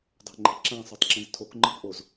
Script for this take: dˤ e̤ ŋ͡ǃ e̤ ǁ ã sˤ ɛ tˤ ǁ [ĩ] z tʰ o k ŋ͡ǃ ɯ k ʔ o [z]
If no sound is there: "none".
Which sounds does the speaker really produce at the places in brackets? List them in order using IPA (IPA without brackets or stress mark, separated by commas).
ĩ, z